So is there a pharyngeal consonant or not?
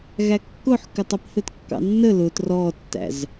yes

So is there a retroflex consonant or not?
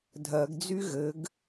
no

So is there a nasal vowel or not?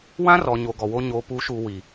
yes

